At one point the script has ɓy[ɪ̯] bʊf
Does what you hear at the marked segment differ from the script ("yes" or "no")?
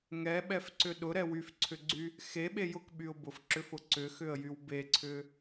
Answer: yes